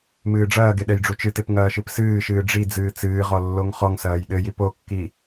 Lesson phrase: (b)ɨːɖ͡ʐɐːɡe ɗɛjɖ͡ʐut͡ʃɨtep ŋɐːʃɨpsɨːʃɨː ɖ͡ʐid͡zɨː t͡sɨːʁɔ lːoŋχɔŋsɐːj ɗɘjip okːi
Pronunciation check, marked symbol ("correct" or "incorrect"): incorrect